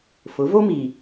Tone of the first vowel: rising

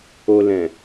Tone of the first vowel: low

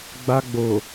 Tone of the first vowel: high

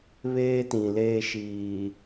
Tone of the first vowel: high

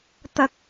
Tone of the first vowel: low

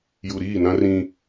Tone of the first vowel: low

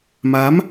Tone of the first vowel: rising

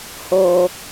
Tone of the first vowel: high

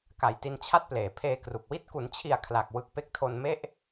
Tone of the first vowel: low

